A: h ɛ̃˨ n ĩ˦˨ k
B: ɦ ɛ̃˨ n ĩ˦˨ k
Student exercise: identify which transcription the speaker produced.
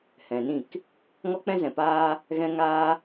A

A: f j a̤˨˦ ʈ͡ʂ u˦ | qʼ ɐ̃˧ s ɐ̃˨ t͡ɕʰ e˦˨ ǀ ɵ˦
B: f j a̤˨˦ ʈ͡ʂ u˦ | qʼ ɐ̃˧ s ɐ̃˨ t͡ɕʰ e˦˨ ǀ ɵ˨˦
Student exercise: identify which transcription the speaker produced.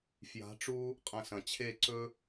A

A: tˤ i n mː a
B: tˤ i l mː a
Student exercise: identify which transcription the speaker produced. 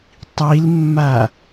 B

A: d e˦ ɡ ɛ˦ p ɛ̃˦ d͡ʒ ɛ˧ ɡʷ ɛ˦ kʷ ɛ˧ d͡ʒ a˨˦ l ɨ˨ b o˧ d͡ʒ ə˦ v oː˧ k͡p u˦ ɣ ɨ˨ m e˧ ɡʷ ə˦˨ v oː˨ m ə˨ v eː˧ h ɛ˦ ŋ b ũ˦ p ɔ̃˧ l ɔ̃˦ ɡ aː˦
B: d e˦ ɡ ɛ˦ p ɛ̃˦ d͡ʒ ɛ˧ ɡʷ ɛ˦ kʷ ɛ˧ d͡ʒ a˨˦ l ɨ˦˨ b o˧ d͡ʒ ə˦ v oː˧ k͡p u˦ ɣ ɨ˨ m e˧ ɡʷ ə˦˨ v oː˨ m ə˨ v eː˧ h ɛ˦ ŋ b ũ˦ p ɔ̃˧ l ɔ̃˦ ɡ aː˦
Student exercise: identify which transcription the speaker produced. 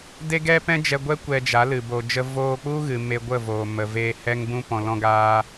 A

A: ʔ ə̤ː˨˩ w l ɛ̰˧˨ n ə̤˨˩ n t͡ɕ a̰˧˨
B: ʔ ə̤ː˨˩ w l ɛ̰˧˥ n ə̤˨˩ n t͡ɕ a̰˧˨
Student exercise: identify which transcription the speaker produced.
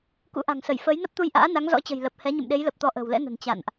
B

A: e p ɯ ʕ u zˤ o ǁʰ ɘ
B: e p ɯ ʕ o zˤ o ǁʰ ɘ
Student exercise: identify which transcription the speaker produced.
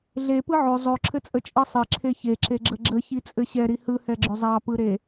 B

